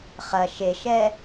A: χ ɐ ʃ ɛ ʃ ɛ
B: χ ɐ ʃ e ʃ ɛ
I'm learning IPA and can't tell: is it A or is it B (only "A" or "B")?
B